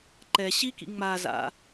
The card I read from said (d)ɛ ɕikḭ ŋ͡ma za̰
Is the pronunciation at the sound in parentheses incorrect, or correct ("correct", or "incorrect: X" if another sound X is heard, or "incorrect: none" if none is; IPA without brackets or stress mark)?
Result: incorrect: ǃ